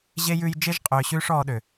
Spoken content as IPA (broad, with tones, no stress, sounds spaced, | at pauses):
ʑ e˥ j ʉ˥ j d͡ʒ e˥ ʒ qʼ ʏː˧ ɕ ʉː˥ ʂ ɔː˧ ɗ ø˩